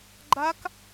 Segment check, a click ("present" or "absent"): present